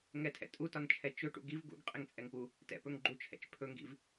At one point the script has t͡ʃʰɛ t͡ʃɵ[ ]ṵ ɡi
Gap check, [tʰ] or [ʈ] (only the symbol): ʈ